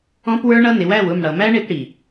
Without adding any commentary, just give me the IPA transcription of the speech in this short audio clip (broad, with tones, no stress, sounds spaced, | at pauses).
ɔ̃˦ p w ə˞˦ ɳ ʌ˦ n ɪ˨˦ w æ˦˨ w ʊ˦˨ m ɽ ʌ˨ m æ˦ ɳ ɪ˧ p ɽ i˨